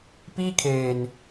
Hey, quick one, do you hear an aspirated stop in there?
yes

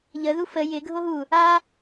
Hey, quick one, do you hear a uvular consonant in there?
no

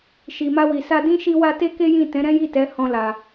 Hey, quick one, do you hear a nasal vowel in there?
yes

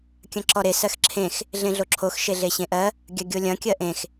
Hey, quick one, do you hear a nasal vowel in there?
yes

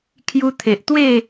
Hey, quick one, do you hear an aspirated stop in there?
yes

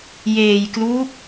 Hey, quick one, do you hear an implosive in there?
no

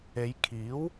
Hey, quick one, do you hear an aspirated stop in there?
yes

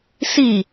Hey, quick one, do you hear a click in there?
no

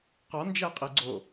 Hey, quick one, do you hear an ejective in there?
yes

